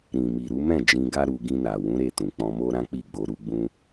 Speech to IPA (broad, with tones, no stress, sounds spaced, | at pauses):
ɾ ĩ˨ m i˨ ɾ u˨˦ m ɛ̃˦˨ d͡ʒ ĩ˧ ɡ a˦ ɾ u˧ ɡ ĩ˧ n a˨ w ũ˨˦ ɾ e˦˨ t ũ˨ k͡p ɔ̃˧ m o˦ ɾ ã˦ k͡p i˦˨ ɡ͡b o˧ ɾ u˦ ɡ͡b ũ˦